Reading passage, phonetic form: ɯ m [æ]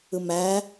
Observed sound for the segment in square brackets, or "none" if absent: æ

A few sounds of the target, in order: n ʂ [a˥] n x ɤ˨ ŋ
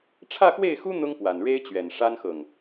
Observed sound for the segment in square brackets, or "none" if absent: a˥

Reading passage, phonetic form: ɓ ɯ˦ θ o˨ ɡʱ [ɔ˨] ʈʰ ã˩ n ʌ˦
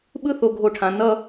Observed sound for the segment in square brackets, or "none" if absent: o˨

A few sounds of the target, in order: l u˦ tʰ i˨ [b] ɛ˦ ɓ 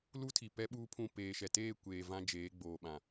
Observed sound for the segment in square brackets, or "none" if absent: p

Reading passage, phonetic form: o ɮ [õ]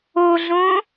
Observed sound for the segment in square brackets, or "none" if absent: õ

